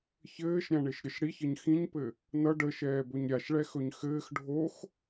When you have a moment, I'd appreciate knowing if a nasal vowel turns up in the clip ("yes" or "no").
yes